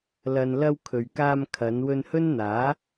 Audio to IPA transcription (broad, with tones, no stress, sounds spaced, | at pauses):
l ɐ˨ n l ɐ˧ w kʰ ɵ˨ ɥ k aː˧ m kʰ ɐ˨˧ n w ɵ˧ n h ɵ˥ n n̪ aː˨˥